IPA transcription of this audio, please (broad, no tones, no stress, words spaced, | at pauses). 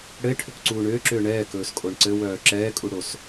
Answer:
ɽɘe̯ʈʰʏkǀuː ɳʏːǁʏː ɳɛːkɵːskʼoɳ ǀɘwœː ǁɛːkʼuɽos